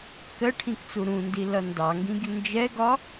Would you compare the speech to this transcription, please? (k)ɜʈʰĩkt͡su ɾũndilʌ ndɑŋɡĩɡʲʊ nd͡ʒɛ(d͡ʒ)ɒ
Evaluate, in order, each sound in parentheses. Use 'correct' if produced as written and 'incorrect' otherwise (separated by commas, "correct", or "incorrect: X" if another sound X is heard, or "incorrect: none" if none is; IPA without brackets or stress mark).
correct, incorrect: ɡ